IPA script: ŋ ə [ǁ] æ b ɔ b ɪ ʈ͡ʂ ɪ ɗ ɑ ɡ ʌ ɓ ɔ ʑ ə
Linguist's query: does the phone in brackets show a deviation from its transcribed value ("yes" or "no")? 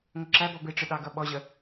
no